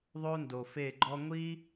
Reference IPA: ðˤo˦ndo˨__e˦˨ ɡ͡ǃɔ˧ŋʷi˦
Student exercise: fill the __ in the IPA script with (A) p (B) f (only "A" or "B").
B